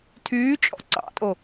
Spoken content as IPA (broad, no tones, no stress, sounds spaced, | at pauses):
tʰ yː t͡ʃʼ ɔ̰ ǀ ɑ̰ tʼ o